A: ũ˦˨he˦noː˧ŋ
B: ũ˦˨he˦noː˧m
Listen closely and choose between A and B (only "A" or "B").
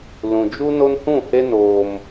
B